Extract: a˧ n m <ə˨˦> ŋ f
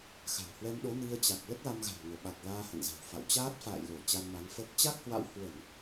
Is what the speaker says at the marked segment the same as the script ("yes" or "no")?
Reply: no